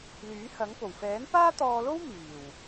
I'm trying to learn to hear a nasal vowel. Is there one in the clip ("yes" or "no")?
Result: no